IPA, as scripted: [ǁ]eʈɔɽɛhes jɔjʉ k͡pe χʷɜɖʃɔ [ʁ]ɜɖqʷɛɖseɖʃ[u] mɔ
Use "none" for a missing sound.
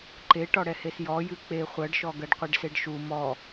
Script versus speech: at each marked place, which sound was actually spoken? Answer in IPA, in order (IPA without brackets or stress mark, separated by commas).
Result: ǃ, ɡ, u